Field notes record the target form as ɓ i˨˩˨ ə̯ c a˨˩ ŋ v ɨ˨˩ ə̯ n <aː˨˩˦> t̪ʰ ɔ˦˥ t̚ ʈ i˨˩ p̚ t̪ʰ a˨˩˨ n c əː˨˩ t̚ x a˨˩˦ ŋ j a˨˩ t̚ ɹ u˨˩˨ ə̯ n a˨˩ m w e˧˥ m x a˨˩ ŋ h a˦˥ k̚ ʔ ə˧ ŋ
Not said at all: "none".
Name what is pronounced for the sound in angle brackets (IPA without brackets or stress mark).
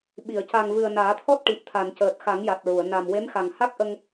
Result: aː˨˩˦